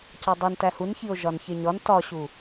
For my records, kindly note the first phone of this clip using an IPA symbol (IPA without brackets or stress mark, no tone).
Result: c